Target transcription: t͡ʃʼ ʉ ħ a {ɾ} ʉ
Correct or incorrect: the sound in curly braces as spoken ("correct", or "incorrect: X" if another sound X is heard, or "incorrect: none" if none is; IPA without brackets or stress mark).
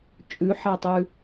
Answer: incorrect: tˤ